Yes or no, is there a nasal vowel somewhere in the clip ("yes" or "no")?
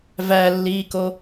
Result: no